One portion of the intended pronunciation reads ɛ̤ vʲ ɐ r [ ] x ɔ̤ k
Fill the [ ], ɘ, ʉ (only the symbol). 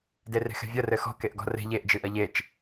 ɘ